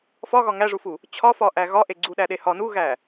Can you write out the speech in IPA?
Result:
fɒɣɒ ŋæʐufu | t͡ɕʰɒfɒʔæ ɣɒʔe ɡ͡ǀuɗæɗe hɒ nuɣæ

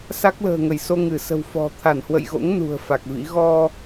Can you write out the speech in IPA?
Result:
sa˦˥k̚lə̤ː˨˩ŋə˧˩jso˧ ŋɨ˧˩sə̤˨˩wfɔ̤˨˩ t̪ʰa˧˩nhwə̰˧˨jɣo̰˧˥ŋ nṳ˨˩ə̯fa˨˩k̚vḭ˧˥ ɣɔ˧

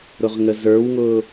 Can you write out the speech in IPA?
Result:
ɾʊʁŋəzə˞wŋʊː

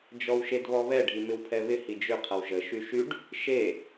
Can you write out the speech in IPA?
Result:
d͡ʒɔwʃedβɔβɛ ɖʱimɪwpʰɛβɪ hid͡ʒʏ qʰɐwʒə ʃyʃyɖ | ʃe

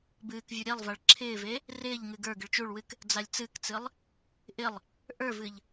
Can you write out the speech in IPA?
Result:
bɨːkvʲu ɾʲelˠvaɭ ǁʰɪːve | rɪːʎŋɨ ɡə˞ɡɨɭ t͡ʃuɭwɨk | d͡zalʲt͡sɨkt͡sɨlˠ | ʔɪlˠ | ʔə˞vɨʎ

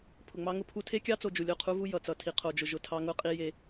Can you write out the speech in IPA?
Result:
pʰʊ˨ŋ͡mɑ˦ŋʊ˦pʰu˦ tʰe˦kʲɑ˦t͡so˨ d͡ʒu˨lʲo˦˨qʰu˦vu˦ jʌ˨t͡sʌ˨ tʰi˨qʰo˨d͡ʒʊ˨ ʒʊ˨tʰɑ˦ŋʊ˦qʼi˦ je˦

